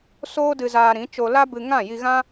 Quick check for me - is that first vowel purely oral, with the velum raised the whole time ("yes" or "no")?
yes